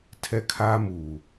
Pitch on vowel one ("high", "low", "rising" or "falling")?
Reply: high